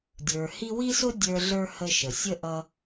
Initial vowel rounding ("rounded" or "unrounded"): unrounded